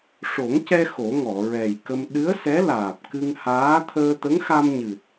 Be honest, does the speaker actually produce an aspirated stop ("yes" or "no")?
yes